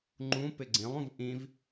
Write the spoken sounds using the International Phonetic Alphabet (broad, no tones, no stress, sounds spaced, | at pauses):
ŋ͡ǃ ũ p ɪ ɡ͡ǀ ĩ lˠ ũ v ʔ ĩ v